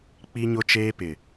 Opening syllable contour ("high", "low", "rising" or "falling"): high